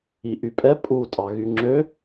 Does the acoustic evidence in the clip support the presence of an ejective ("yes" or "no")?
yes